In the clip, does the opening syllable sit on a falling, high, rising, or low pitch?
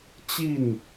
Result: falling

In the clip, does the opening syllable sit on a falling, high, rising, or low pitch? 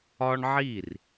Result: high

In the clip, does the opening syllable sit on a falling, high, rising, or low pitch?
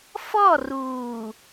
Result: falling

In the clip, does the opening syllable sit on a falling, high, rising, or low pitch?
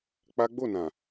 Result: high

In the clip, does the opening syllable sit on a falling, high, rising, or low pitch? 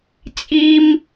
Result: high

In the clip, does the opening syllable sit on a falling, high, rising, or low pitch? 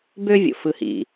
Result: high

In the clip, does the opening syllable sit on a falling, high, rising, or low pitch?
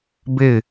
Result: falling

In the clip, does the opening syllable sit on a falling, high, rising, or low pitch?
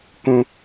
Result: high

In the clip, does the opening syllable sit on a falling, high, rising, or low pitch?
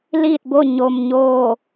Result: falling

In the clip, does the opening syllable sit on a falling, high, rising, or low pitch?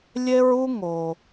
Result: high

